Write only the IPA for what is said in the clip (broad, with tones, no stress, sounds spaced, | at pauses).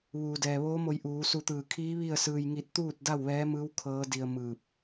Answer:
ʋ uː˩ d ɛː˩ ʋ oː˧˥ m o˧ j ʔ uː˩˧ s u˧ t̪ ɯː˧˩ kʰ iː˧˥ ʋ i˥˨ ə̯ s ɯː˧ j ŋ i˧ t̚ t̪ uː˥˨ t̚ d a˥˨ w ʋ ɛː˧˥ m ɯː˧˥ w kʰ ɤː˧˥ d i˧ ə̯ m ɯː˧˩ p̚